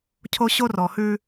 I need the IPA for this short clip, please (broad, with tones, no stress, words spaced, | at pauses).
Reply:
cʰo˦ɕo˦rɔ˨hʉ˦